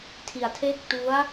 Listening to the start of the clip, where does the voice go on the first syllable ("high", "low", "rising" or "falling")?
low